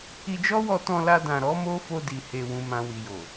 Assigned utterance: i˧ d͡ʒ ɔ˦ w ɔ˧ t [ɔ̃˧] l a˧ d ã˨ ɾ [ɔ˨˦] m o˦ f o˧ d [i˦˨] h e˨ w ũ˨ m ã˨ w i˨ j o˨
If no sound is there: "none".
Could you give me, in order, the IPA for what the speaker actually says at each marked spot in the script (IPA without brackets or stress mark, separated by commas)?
ɔ̃˧, ɔ˨˦, i˨